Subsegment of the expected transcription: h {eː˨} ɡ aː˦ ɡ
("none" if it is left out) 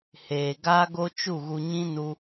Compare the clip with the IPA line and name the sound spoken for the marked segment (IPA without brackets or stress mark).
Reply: eː˨